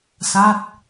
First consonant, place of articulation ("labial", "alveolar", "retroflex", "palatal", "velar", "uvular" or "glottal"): alveolar